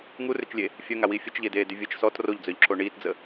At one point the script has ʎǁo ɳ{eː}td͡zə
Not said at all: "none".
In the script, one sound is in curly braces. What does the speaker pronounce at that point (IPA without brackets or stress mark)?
iː